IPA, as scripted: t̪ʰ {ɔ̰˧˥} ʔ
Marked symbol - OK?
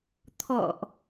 no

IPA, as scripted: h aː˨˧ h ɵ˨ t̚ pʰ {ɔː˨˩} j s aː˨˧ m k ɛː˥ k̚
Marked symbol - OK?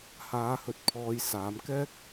no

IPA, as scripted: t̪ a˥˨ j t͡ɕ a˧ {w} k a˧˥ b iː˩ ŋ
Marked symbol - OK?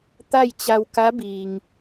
yes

